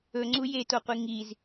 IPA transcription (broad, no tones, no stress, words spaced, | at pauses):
ɵŋ͡ǀu jetoqʷi ŋiz